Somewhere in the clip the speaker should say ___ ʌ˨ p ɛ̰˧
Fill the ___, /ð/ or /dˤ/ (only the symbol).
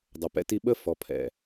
dˤ